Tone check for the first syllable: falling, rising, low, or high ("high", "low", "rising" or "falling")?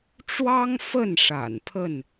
high